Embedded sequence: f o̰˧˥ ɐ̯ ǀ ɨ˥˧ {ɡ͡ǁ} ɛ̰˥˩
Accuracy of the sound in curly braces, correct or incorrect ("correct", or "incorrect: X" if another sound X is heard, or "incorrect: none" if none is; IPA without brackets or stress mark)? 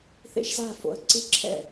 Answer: incorrect: ǁʰ